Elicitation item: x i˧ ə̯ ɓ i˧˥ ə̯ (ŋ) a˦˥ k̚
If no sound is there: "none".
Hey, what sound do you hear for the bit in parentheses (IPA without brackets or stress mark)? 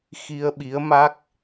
m